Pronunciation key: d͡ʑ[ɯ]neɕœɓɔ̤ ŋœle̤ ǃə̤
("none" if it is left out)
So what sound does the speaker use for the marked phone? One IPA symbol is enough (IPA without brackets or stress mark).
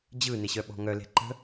ɯ